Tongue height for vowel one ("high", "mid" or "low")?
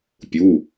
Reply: high